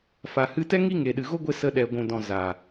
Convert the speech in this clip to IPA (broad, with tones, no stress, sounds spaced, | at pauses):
f a˨ h ɨ˧ t ɛ˦ ŋ i˧ ŋ e˨ ɗ ɨ˨ ɣ o˦ ɡʷ e˧ s ə˧ ɗ ɛ˨ ɡʷ ũ˨ d ɔ̃˨ z a˨